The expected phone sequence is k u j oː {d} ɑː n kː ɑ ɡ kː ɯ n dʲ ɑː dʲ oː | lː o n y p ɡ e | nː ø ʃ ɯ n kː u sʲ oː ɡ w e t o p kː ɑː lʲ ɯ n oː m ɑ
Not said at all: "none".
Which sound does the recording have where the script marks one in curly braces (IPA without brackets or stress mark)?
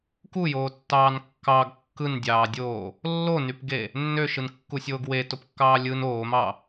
tː